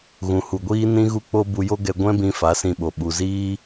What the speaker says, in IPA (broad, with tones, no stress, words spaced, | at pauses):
ɣũ˨hu˨ɡʷiː˦ nĩ˦ɣu˦k͡po˦ bu˧jo˦ɡɛ˧ ɡʷɛ̃˦bĩ˧ fa˨˦sĩ˧ɓo˨ ɓu˨ziː˦